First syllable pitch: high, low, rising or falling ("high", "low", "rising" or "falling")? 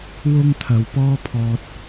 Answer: high